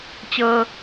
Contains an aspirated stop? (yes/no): no